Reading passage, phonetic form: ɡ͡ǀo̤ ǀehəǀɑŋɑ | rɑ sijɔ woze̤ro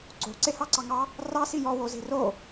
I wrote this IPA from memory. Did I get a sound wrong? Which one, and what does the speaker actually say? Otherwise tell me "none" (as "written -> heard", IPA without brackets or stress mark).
ə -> ɑ